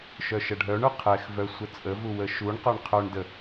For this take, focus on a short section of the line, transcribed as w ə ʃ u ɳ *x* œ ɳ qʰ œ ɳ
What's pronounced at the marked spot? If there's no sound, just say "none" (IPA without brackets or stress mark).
q